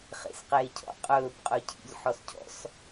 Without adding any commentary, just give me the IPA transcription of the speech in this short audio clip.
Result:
χḛsqeːcʰɔ̰ qʼɵːb qʼɵcʰḭʎ ħɔscʰɔ̰s

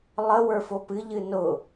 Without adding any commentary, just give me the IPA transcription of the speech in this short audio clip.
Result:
lˠəwə˞ fopɨʎɨ nʊ

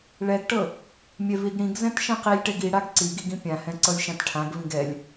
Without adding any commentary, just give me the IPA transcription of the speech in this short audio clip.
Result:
ɭɛɡʈɤ | mʲɛviɡɽĩɡzɛ̃t ʃɛ̃qilʲʈɛɡ iɽaɡ ǀiɡiɡ ĩpʲãhɛ̃ ǀɤlʲʃãtʈʰãɡvĩɡ ɛlʲ

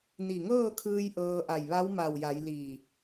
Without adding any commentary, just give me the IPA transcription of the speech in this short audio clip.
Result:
ni˧˩ŋɤː˥˨kʰɯː˧j ʔɤː˧ʔa˧˩j ʋa˧˥wma˧˩wja˩˧j li˧˩

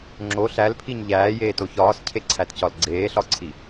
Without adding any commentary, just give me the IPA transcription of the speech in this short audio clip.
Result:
ŋ͡ǁo ɬælpʰiɲ ʎæːjeːto çɒːscʰeǀʰætcɒl ɡ͡ǀeːɬɒǀʰi

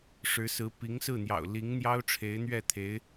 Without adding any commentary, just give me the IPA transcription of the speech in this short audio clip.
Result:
ʂɻ̩˧˥sɹ̩˧˥ pi˧˥ŋsɹ̩˥˩n̪jɑ̰˨˩ʊ̯ li˧˥ŋ n̪jɑ˥ʊ̯ʈ͡ʂʰe˧˥ɪ̯n̪ɥɛ˥˩ t̪ʰe˧˥ɪ̯

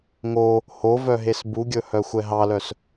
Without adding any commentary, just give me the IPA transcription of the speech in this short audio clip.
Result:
ŋo | hovœɦes buɡʲɵhœxʷɛ ɦɑlœs

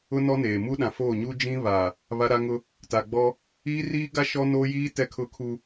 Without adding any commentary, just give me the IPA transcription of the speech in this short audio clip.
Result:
ʊ˦nɔ˦neː˨ mu˦ɗã˨foː˦˨ ɲu˦d͡ʒĩ˦ βaː˨ | βa˦ɾa˦ŋʊ˦ | ta˨ɡ͡bɔ˦ | iː˦riː˦ɡa˦ ʃɔ˦noː˦jiː˦ tɛ˦kʰʊ˦kʰu˦

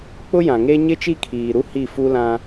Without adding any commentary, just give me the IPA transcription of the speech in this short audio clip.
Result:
k͡pʊ˦jã˨ŋe˦ ɲɪ˦t͡ʃi˦kʰiː˨ɾu˦ hi˦˨fu˦lã˦

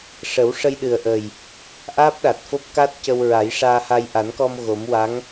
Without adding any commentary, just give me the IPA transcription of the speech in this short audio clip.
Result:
ʂə˨˩˦wʂə˧jɗɨ˨˩ə̯ʔəː˨˩j | ʔaː˦˥p̚ɗa˨˩t̚fo˦˥p̚ka˦˥t̚ cə˧w ɹa˨˩˦jʂaː˧ha˧j ʔa˨˩˦nkɔ˧m ɣo˨˩˦m wa˧˥ŋ

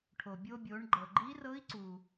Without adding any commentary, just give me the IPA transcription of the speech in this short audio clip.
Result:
ʈʰo˩bʲo˧bʲo˩˧ɳɡ͡ǃɤ˩ ɡ͡ǃi˧˥rɤ˧˥i̯ǀu˩

